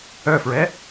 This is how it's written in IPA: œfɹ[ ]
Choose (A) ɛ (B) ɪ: A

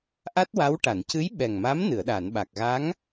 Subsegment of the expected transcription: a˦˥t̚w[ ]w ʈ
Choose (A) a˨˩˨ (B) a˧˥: B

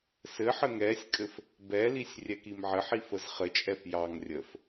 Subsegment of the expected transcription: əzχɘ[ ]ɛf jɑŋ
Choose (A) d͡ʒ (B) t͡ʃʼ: B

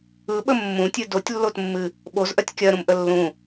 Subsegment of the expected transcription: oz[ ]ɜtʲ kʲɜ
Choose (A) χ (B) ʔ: B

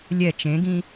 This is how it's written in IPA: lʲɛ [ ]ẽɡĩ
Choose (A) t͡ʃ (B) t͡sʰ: A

